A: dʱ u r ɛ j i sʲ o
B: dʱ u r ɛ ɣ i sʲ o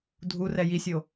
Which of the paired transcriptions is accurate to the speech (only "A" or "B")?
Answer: A